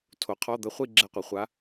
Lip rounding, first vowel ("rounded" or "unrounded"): rounded